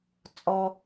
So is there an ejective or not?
yes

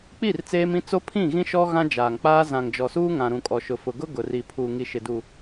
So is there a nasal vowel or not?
yes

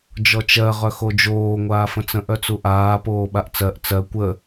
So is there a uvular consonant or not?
yes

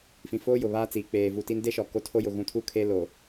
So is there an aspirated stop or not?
yes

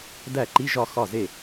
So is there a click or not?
yes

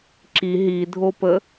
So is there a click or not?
yes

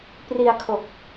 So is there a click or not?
no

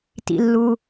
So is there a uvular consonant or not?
no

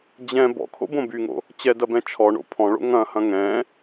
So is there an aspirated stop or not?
yes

